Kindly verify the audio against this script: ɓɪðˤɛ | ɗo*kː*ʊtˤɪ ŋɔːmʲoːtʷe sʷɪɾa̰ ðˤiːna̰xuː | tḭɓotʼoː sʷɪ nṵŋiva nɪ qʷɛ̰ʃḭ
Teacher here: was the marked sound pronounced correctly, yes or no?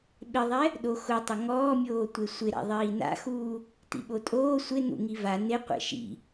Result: no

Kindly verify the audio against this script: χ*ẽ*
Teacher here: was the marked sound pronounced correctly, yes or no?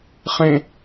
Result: yes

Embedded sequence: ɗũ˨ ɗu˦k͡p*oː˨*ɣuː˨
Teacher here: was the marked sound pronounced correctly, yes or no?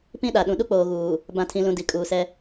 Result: yes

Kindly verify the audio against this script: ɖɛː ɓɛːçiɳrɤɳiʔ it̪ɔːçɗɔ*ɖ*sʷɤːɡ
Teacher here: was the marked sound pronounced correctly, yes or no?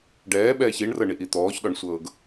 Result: no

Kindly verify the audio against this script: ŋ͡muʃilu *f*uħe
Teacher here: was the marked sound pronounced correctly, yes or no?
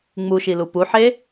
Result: no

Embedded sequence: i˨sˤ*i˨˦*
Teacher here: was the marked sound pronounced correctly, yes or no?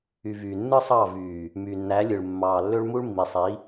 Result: yes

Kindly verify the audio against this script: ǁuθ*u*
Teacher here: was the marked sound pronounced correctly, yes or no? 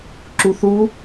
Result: yes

